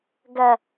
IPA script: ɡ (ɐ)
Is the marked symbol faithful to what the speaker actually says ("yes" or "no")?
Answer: yes